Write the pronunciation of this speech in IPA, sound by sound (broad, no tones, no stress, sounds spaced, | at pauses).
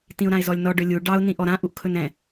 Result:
t ĩ ʊ̯ ɾ ã ɪ̯ z ɔ lʲ n ɔ ɖ ɵ lʲ u ɖ ɑ ʊ̯ n ĩ ʔ ɔ ɾ ã ʔ u ʔ kʰ ɵ n ɛ̃